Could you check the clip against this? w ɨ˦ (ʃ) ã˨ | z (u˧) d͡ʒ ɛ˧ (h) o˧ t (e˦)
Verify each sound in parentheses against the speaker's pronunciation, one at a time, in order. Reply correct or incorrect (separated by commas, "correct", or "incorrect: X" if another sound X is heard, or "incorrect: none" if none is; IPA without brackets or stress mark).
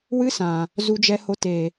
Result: incorrect: s, correct, correct, incorrect: e˨